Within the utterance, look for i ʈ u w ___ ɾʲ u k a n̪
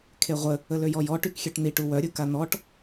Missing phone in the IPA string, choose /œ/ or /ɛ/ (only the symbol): œ